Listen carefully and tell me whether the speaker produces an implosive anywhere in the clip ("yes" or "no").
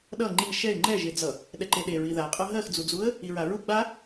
yes